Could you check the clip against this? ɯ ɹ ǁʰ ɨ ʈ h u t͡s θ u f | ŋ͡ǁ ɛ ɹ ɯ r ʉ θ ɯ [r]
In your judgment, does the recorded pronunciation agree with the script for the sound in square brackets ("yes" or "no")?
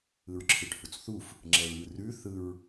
no